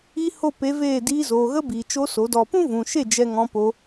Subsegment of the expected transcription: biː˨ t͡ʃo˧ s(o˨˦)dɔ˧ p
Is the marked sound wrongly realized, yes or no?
no